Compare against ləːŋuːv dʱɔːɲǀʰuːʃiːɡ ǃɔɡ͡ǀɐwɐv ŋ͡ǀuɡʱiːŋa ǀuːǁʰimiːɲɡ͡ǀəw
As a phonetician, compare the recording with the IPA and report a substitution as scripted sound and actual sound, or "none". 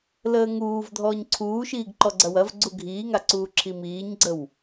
ŋ͡ǀ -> ɡ͡ǀ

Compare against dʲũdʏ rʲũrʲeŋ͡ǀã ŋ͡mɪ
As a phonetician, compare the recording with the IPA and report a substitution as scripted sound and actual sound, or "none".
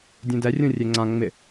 ʏ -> ɛ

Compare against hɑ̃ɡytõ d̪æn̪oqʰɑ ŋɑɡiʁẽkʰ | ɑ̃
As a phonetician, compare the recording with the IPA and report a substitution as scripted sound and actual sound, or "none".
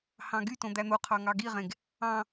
kʰ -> ɡ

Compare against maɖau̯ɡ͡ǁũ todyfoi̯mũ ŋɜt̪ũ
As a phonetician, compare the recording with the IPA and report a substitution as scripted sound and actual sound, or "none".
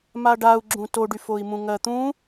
d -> ɖ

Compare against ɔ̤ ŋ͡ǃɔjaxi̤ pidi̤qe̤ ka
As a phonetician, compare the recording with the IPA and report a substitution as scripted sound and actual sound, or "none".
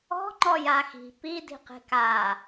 none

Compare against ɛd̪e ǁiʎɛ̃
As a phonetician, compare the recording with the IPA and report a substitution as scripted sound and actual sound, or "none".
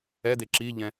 none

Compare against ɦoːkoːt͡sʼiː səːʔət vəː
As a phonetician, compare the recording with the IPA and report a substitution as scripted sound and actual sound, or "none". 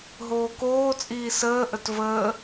none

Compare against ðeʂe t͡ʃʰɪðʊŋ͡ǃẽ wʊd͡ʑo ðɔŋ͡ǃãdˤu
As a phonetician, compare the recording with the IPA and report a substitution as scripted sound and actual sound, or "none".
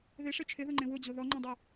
none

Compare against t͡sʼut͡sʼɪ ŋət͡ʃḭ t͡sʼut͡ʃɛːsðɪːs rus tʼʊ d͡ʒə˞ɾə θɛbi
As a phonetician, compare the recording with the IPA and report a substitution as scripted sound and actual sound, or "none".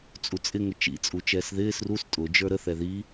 b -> ð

